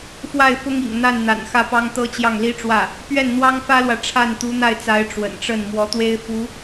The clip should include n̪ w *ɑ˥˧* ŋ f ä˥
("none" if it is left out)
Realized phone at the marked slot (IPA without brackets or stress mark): ɑ˥